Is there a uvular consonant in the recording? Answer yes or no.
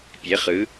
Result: yes